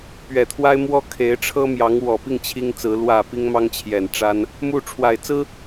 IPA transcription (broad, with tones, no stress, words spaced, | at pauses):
pɥɛ˨˩t̪ʰwa˥ɪ̯ mwɔ˥ kʰe˧˥ɪ̯ʈ͡ʂʰɤ˥mjɑ˧˥ŋ wɔ˨˩pi˥˩ŋ t͡ɕʰi˥ŋt͡sɹ̩˧˥ lwä˨˩ pi˥ŋ mɑ˥ŋt͡ɕʰjɛ˨˩nʈ͡ʂa˥n | mu˥˩ ʈ͡ʂʰwa˨˩ɪ̯t͡sɹ̩˥